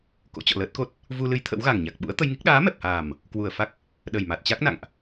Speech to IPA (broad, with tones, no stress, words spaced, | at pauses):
ko̰˧˥t͡ɕɔ̰˧˨ləː˦˥t̚ko˦˥t̚ | vu˧ lɨ˨˦j t̪ʰə̰˧˥wɣa˨˩ŋɲa˨˩k̚ ɓṵ˧˥ə̯t̪ə˧jŋi˦˥k̚ ɗaː˨˦mɛ˨˩p̚haː˨˩m | kwu˨˩ə̯fa˦˥k̚ | ɗə˨˩jma˨˩t̚t͡ɕa˦˥k̚ na̰˧˨ŋʔ